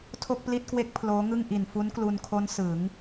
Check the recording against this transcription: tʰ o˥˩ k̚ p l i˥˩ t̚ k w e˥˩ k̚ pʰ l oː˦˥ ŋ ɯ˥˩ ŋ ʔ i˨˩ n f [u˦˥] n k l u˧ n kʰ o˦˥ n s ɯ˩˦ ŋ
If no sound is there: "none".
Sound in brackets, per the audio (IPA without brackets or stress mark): u˦˥